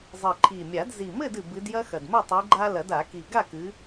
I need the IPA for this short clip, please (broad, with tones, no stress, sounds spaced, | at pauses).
zˤ ɨ˨˩ ǃʰ i˨˩ mʲ a˨˩˦ d z i˨˩ m ɘ˥˨ d ɨ˨˩ b ɨ˨˦ d j ɐ˦ x ɐ˨˩ d m ɘ˥˨ tˤ i˨˦ ɡ͡ǃ a˦ l ɐ˨˩˦ d a˨˩˦ k i˨˩ ɡ a˥˨ k ɨ˨˦